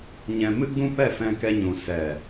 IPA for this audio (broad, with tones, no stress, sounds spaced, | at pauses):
ɲ ɛ̃˧ m ɨ˦ ɡ͡b ũ˦ p ɛ˦˨ f ɛ̃˧ k ɛ˧ ɲ ũ˨ s ɛ˨